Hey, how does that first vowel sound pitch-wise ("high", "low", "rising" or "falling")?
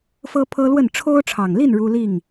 high